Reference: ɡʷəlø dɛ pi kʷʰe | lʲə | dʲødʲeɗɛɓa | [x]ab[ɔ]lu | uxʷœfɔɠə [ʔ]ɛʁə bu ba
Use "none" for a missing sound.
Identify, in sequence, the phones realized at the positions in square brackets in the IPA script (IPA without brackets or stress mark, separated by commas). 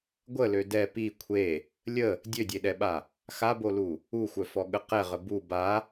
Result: x, o, q